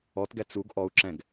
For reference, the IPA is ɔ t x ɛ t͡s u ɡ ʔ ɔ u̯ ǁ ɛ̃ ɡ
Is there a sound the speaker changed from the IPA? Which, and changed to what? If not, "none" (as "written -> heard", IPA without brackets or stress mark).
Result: x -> ɡ